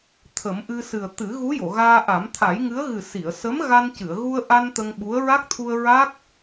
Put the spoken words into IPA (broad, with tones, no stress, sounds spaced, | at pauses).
t̪ʰ ə˨˩˦ m ʔ ɨ˧ s ɨ˨˩ ə̯ t̪ ɨ˨˩˦ ɣ u˧˥ j o˨˩˨ ɣ aː˧ ʔ a˨˩˦ m t̪ʰ a˨˩˦ j ŋ ɨ˧˥ ə̯ ɣ ɨ˨˩ s i˨˩˨ ə̯ s ə˧˥ m ɣ a˧ n c ɨ˨˩˨ ə̯ ɣ u˧ ə̯ ʔ a˧ n t̪ ə˧ ŋ ɓ u˧˥ ə̯ ɹ a˦˥ k̚ t̪ʰ u˧ ə̯ ɹ a˦˥ k̚